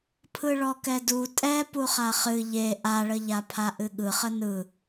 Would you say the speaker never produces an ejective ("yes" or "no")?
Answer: no